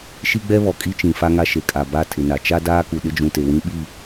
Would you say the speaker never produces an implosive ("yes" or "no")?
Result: no